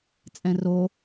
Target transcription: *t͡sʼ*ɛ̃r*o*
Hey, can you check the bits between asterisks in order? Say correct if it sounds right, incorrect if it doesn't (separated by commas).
correct, correct